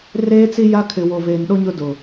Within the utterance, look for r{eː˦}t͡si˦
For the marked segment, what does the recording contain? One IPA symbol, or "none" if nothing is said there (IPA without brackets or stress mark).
eː˦